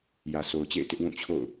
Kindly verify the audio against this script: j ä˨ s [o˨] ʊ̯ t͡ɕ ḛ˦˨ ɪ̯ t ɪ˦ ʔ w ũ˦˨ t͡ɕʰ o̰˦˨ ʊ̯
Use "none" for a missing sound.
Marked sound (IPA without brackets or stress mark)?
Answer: o˨